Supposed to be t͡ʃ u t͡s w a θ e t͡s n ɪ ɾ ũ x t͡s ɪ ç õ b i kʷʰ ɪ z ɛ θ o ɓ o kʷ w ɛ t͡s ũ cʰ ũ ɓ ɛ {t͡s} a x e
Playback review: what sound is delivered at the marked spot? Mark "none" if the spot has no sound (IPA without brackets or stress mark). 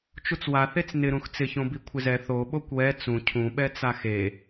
t͡s